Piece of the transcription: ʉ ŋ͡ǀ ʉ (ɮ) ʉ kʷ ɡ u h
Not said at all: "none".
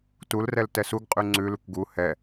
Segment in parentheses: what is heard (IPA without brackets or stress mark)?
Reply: l